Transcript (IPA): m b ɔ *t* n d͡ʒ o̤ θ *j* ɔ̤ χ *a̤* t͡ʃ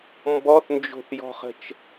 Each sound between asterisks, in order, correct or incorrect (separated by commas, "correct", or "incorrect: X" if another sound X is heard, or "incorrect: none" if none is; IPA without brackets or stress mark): incorrect: θ, correct, incorrect: ə̤